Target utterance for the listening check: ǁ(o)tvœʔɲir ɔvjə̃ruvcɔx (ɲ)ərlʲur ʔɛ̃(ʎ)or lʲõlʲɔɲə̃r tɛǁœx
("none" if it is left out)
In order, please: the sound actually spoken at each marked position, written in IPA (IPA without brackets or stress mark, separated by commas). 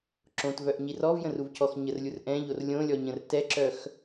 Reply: õ, ɲ, ʎ